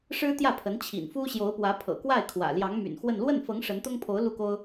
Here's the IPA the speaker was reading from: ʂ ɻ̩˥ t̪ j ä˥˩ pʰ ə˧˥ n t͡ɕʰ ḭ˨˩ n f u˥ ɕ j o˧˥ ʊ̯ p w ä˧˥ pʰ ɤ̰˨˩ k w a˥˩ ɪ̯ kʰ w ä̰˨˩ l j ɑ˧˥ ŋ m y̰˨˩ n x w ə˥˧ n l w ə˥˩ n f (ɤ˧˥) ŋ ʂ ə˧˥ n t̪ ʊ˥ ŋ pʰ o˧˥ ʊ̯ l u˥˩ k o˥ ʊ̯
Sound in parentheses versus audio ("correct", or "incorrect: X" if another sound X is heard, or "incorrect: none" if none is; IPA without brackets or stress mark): correct